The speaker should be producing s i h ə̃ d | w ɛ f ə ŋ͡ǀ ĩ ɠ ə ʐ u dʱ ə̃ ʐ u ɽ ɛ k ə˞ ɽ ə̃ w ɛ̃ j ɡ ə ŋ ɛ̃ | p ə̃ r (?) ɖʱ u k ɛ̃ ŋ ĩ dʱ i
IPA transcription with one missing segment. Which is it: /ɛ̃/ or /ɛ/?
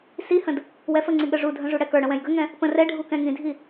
ɛ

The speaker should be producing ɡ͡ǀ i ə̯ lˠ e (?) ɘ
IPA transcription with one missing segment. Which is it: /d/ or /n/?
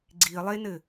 n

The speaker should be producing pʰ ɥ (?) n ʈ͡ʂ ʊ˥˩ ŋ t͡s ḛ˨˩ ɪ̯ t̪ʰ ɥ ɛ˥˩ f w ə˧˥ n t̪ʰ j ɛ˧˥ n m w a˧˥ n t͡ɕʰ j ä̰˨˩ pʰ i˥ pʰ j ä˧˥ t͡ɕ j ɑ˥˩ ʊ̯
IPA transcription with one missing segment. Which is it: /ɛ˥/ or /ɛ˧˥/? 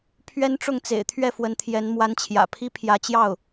ɛ˥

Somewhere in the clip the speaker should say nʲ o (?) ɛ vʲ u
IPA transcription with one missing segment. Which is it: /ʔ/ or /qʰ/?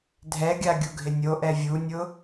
ʔ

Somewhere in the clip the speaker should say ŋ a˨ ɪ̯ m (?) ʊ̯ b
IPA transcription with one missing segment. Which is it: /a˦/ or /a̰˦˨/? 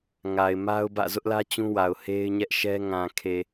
a˦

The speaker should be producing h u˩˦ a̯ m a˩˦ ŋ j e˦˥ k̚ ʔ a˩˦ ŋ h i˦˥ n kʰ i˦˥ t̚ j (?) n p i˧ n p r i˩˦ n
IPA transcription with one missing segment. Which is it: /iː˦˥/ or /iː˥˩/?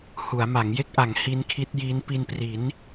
iː˦˥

